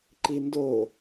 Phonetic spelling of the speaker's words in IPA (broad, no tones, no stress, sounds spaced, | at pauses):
ǃ i n d o